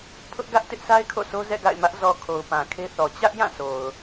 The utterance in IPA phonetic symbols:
pʰ ʊ˦ ʔ ɡ ä˦ ʔ t ɪ˦ ʔ sʰ a˦ ɪ̯ kʰ o̰˦˨ s o˦ z ɛ̰˦˨ ɡ a̰˦˨ ɪ̯ m ä˦ ʔ z ɔ˨ kʰ o˨ ʊ̯ p ã˨ kʰ e˦ θ ɔ˨ t͡ɕ ä˦ ʔ j ã˦˨ s o˨ ʊ̯

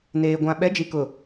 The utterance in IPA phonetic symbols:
n eː˨ ɡʷ ã˨ ɓ ɛ˨˦ d͡ʒ i˨ k ʊ˨

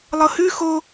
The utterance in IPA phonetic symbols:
lˠ ɤ h ʉ x o

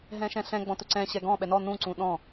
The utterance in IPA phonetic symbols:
ɦ ɛ̃ ʃ ɛ̃ ɬ ɛ̃ ɡ͡b ɔ̃ t ɵ ǀ ɛ̃ ɕ ɛ ɡ ɔ̃ ɓ ɛ n ɔ n ũ ǀ ũ ɗ ɔ̃

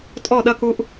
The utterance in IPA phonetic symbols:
tʼ ɔ˦˨ ɗ ɐ˦ k u˦ ʔ

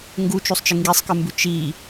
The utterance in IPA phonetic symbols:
ŋ ɡ u t͡ʃ u sˤ t͡ʃ ɨ ŋ ɡ i sˤ k ɨ m b ʉ t͡ʃ i

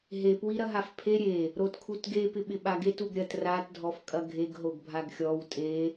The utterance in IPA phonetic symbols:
ɦ e p w i ɾ ɐ ɦ a f pʰ e ɾʲ e | ɾ o t kʰ u t ɡ e p ɪ ɓ ɪ ɓ a ɡ e t u ɡ ɾʲ ɐ t r a t dʱ ɔ f kʼ ɐ ɡʱ e ɡ ɦ o ɡ bʱ a ɡ xʲ ɔ w tʼ e

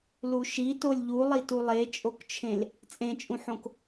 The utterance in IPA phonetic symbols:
l u ʃ i t o lʲ ʎ u lˠ i t u lˠ e t͡ʃʼ o k t͡ʃʰ ẽ l | t͡sʼ ẽ t͡ʃʼ ũ ħ õ k

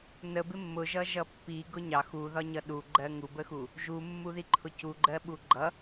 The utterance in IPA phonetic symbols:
n ə b ɪ mː ʊ ʒ ʌ ʒ ʌ pː i ɡ ʊ ɲ ɑ x u ð ɒ ɲ ʌ ɗ u ɡ͡ǃ ɜ ŋ u b ə x u | ʒ u mː u ð i ǃʰ ʊ c u ɡ͡ǃ ɜ ɓ u ɡ͡ǃ ʌ

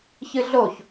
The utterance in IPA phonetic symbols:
ç ɨ ɮ o ç

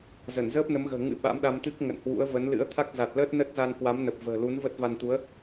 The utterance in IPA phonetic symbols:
z ə˧˩ n z əː˦˥ p̚ n ə˨˦ m ɣ ə̤ː˨˩ ŋ ɨ̰˧˥ ɓ a̰˧˥ m ɗ a˧ m t̪ ɨ˦˥ k̚ ŋ ə̰˧˨ n h w ṵ˧˥ ə̯ v ə˨˦ n l ɨ̰˧˥ ə̯ t̪ʰ a˦˥ k̚ z a˨˩ t̚ l əː˦˥ t̚ n ə˦˥ t̚ z a˧ n k w a˨˦ m n ə˨˩ p̚ v ə̤ː˨˩ l u˨˦ n v ə˦˥ t̚ v a˧ n t̪ u˨˦ ə̯

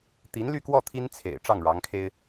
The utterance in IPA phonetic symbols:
t̪ i˧˥ n l y˥˧ k w ɔ˥˩ t̪ʰ i˥ n t͡sʰ ḛ˨˩ ɪ̯ ʈ͡ʂ ɑ˥˩ ŋ ɻ ɑ˧˥ ŋ kʰ e˥ ɪ̯

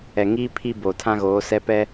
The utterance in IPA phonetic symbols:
ɛ˨ ŋ iː˦ pʰ i˦ b oː˨ tʰ ã˦ ɣ oː˨˦ s ɛ˦ p ɛ˦

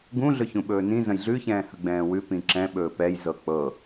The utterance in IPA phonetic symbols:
ɡ ũ ɮ ɵ ç ũ ɓ ɵː n ĩ z ə̃ j ɮ ʉ ç ɛ̃ː h ə ɡ͡b ɛ̃ː w ʉ p ĩ ǁ ɛ̃ ɓ ɵː p ɛ j z ɤ k͡p ɤ

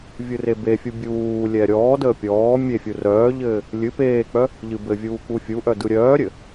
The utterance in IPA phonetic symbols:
vʲ ɯ r e b e fʲ u bʲ uː lʲ ɛ ɾʲ ɔː d əː pʲ ɔː mʲ e fʲ u r œː ʎ ɘː | lʲ ɨ p eː k͡p œ | ʎ ɨ b ɘ vʲ uː k͡p u fʲ u ʔ œ d ɯ ɾʲ œː ɾʲ ɘ

